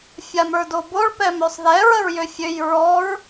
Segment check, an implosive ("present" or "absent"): absent